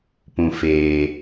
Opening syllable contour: low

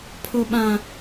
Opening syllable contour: high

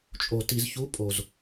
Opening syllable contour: low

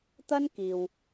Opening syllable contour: high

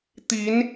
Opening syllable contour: rising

